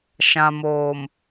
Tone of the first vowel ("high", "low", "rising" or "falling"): low